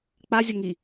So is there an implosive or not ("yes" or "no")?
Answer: no